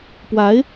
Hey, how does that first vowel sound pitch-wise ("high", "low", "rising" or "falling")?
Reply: rising